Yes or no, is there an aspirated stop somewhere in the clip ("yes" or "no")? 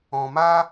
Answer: no